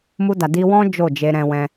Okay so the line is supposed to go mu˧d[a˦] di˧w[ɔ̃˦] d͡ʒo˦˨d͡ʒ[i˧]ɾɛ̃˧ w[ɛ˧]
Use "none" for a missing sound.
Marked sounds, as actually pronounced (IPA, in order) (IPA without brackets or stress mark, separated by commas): a˨, ɔ̃˦, e˧, ɛ̃˧